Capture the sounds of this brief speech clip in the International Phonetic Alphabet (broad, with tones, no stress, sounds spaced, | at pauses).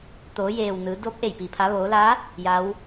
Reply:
t̪ oː˩˧ j eː˩ w n ɯː˩˧ d o˧˥ p̚ ʔ e˧˩ j p i˩ pʰ a˩˧ ʋ oː˩˧ l a˧˥ | j a˧˥ w